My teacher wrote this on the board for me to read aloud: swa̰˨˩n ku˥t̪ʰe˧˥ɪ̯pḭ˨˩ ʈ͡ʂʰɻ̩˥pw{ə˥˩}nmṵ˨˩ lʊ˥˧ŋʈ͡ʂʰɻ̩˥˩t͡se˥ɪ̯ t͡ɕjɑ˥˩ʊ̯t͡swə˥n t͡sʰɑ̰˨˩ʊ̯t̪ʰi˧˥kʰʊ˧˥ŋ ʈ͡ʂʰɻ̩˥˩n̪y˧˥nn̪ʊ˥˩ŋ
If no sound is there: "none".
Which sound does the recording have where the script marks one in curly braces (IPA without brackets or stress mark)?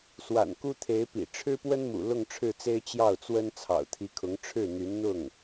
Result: ə˥